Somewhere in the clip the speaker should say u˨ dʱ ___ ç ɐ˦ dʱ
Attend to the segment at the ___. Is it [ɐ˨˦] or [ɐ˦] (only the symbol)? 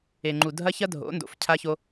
ɐ˦